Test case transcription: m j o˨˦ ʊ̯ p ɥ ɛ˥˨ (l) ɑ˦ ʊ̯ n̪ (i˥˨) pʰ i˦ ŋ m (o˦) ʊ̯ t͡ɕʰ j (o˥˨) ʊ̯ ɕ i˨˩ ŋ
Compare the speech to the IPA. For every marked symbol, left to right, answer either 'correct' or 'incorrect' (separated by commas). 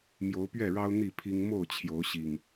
incorrect, correct, incorrect, incorrect